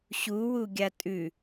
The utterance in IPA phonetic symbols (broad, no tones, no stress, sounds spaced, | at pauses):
ɕ u w u ɡʲ a tʼ ʉ